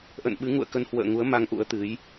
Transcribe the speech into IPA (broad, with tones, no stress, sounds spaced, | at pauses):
ʔ ə̰˧˨ n ɓ ɨ˨˦ ŋ ṵ˧˨ ə̯ k ə˧ n h w ə̰ː˧˨ ŋ u˨˦ ə̯ m a˧ ŋ ʔ ṵ˧˥ ə̯ t̪ ɨ˨˦ j